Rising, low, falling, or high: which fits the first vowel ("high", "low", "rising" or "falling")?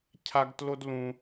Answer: high